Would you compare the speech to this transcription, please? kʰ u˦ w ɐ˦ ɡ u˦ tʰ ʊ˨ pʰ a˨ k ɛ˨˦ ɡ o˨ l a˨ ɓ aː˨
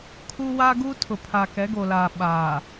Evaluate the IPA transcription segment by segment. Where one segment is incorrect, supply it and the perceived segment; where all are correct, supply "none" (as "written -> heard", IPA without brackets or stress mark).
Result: ɐ˦ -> a˦